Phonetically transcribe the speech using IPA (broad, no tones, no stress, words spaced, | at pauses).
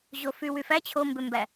ʑofywyfæ t͡ɕʰombømbæ